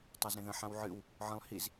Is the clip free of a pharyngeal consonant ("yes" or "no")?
no